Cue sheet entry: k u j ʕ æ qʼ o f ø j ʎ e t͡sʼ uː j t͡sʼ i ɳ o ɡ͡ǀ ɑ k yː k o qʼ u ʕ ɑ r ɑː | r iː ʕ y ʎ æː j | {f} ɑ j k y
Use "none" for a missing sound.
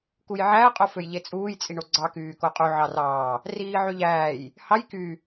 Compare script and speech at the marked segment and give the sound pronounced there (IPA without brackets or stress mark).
h